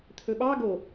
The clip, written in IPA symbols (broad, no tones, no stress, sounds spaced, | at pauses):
t̪ʰ ɵ ɓ ɑ ɡ o